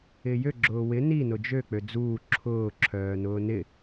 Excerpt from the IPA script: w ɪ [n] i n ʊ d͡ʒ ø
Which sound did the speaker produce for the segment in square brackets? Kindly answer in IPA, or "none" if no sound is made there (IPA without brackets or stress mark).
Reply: n